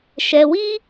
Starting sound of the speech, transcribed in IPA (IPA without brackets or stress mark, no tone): ʃ